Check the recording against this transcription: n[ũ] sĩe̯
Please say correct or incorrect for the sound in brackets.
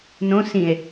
incorrect: õ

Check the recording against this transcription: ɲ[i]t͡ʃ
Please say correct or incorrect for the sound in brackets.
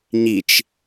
correct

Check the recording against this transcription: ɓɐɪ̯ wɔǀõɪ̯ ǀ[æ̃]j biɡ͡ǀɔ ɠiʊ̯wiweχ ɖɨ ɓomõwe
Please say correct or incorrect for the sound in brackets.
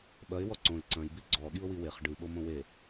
incorrect: ɐ̃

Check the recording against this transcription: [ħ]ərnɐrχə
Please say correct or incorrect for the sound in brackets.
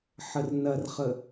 correct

